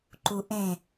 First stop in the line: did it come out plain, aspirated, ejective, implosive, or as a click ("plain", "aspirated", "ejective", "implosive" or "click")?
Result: click